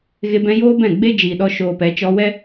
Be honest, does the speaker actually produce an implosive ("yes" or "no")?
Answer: yes